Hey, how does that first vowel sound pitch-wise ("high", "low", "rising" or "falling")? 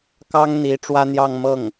high